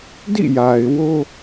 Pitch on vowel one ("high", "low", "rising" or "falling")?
falling